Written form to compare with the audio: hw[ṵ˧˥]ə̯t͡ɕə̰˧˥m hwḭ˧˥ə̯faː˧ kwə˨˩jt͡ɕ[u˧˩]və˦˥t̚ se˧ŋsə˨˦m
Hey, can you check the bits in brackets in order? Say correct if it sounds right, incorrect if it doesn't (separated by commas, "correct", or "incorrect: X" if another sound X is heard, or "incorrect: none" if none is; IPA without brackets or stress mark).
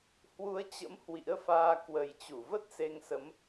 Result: incorrect: u˨˦, correct